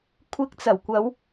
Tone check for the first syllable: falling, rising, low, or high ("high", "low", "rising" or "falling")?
rising